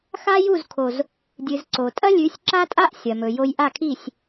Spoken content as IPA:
xa˦ju˦˨z kʰo˨z | dʲɨ˨z ǀo˨ tʼɐ˦lʲʉ˨˦sʲ ǁa˦tʼa˦ʔ sʲɐ˨mɵ˨jo˦j ʔa˦˨kʰi˦˨sʲ

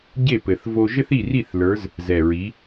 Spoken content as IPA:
ɟe˥˨pɘ˨˩θ vo˥ ʒɘ˥θi˥˨ri˥˨θlə˞˨˦z | zɛ˨˩ɹi˨˦

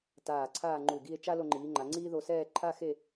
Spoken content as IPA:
taː˧˩ǀʰaː˥˧ŋ͡ǃu˧˩ɡi˥˧e̯ t͡ʃa˥lo˧ŋ͡ǃiː˩˧ŋ͡ǃa˩˧ ŋ͡ǀiː˥ðo˧sɛː˥˧ ǃʰa˥xe˥˧

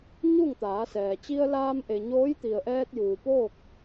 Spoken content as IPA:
ɲu˥˨ŋt̪aː˩˧sɛː˩ t͡ɕi˧ə̯laː˧mʔe˩ ɲoː˧˥jt̪i˩ə̯ʔɛː˧t̚ juː˩poː˥˨k̚

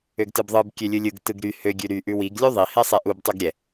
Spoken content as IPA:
øɡtɯbðˤɯb kʲølʲɯlʲɯɡ tɯɡɾy hø ɡʲʉɾy ʔʉwiɡ lʲuðˤi hɛsˤɛʔub tˤʉɡɾʲɛ

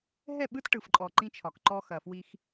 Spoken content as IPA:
ɦɛ˦˨ɓɯ˦t ʈɯ˨fǃʼɔ˨ ǃĩ˦t͡ʃʰɒ˨kǃɔ˦ xɐ˨fwi˦x

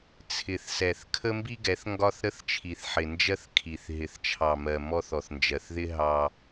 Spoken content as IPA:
t͡sʰɪ˨θsɛ˨θ kʰə˦mbi˦ɡɛ˨˦θ ŋɡɒ˦θɾə˦θt͡ʃʰi˨θ ħɪ˨nd͡ʒɜ˦θ kʰi˨θ ɦɪ˨θt͡ʃʰɑ˨mɜ˨ mɔ˦θ ɔ˨θnd͡ʒɜ˨θðɪ˦ ɦɑ˦

